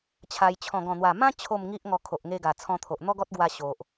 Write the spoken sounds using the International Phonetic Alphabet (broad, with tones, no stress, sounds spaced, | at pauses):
t͡ɕʰ a˧ j t͡ɕʰ ɔ̃˨˩ ɡ ɔ̃˨˩ n̪ w a˨˩ m ã˦ t͡ɕʰ o˥˧ m ŋ i˦ ʔ ŋ ɔ˧ kʰ o˨ ʔ ŋ e˧ ɡ a˨˩ t͡sʰ ɔ̃˧ t̪ʰ o˨ ʔ n̪ ɔ˦ ɡ ɔ˦ t̚ ɡ w a˧ ɕ o˨ ʔ